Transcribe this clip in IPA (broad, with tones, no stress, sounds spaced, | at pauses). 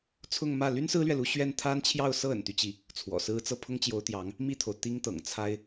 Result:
t͡sʰ ʊ˥˧ ŋ m ä˥˩ l y˥ n s ɹ̩˥ l ɥ ɛ˨ l u˧˥ ɕ ɥ ɛ˥˩ n t̪ʰ a˥ n t͡ɕʰ j ɑ˥˧ ʊ̯ s ɤ˥˩ ə̰˨˩ n t̪ y˦ t͡ɕ i˥˩ | t͡sʰ w ɔ̰˨˩ s ɹ̩˥ t͡s ɤ˥˩ pʰ ʊ˥ ŋ t͡ɕ j o˧˥ ʊ̯ t̪ j ɑ˧˥ ŋ | m i˥˩ t̪ʰ o˩ ʊ̯ t̪ i˥ ŋ t̪ ɤ̰˨˩ ŋ t͡sʰ a˥ ɪ̯